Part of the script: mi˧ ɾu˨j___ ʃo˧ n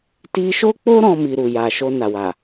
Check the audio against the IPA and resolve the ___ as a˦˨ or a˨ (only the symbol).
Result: a˨